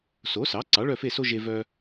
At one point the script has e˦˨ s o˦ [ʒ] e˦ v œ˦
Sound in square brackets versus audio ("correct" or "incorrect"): correct